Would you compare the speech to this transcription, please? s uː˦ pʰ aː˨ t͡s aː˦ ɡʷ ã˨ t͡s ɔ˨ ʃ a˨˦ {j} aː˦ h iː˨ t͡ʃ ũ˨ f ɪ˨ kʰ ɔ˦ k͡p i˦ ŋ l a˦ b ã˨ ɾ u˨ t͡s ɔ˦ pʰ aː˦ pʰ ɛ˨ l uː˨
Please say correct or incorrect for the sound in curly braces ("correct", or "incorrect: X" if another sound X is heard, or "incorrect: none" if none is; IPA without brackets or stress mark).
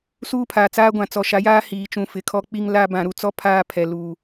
correct